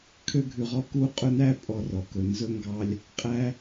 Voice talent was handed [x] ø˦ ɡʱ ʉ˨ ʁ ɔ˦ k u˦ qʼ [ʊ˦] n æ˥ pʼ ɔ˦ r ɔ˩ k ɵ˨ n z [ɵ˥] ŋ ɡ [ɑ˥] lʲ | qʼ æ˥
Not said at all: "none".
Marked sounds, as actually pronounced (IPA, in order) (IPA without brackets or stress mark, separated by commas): kʰ, ɵ˦, ɵ˥, ɑ˦